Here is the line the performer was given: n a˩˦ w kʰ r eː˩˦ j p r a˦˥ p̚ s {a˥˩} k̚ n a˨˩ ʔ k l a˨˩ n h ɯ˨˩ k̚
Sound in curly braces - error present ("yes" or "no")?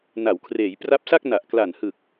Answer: no